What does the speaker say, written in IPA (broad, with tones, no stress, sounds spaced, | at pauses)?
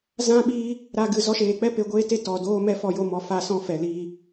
z ã˦ ɓ iː˦ | ɾ a˧ ɡ ɨ˨ z ɔ˧ ʃ eː˨ k͡p ɛ˦ p e˧ ɡʷ eː˦ t e˦ t ɔ˨ d oː˦ m ɛ˦ f ɔ˧ j o˧ m ɔ˨ f a˧ s ɔ̃˧ f ɛ˨ l iː˧